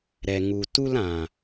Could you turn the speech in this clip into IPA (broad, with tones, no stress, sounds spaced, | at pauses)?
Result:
ɾ ɛ˨ ŋ u˨ t u˧ l ã˨